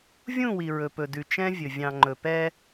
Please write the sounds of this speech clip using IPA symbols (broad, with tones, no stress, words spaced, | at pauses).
vʲũ˦˨wi˨ ɹɵ˨pɵ˨dʉ˨ t͡ʃɛ̃˦vʲɵ˨ vʲɑ̃˨ŋ͡ǃɵ˨pɛ˦